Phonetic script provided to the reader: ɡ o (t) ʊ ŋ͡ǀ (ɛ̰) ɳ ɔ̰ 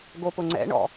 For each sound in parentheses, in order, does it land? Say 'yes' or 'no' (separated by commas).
no, yes